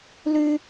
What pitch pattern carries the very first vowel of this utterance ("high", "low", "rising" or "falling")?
high